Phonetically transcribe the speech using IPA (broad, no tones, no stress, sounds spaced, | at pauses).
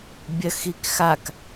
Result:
bʲ ɐ x i k x a k